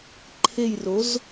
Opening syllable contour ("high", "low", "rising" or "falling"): falling